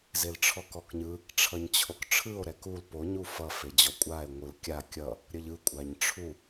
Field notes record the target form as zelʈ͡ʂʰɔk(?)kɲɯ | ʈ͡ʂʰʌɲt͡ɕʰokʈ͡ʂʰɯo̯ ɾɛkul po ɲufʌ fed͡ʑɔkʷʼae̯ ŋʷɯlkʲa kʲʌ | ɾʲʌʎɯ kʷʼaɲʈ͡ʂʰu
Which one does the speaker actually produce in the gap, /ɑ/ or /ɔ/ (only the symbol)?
ɔ